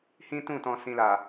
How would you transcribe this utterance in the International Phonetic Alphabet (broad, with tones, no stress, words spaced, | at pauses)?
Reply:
hĩ˦tũ˦˨ tɔ̃˨sĩ˨la˨